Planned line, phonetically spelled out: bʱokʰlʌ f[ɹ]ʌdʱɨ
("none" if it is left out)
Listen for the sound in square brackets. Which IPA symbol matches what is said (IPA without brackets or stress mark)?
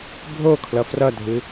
r